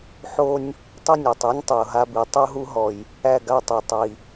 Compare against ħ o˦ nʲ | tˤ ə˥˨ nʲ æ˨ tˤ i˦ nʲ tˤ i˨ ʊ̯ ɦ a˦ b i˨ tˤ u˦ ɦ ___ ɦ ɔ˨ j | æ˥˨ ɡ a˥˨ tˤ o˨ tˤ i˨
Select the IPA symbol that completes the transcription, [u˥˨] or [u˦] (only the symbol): u˦